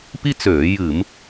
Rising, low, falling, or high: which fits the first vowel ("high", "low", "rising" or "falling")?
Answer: high